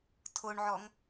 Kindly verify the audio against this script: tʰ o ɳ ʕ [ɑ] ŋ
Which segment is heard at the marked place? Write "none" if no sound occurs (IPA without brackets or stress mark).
ɔ